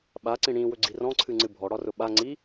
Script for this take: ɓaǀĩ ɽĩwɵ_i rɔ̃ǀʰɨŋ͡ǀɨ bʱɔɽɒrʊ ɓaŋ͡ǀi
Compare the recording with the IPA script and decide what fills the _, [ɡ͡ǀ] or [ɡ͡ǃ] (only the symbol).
ɡ͡ǀ